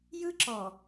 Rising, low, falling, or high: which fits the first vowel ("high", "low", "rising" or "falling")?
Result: high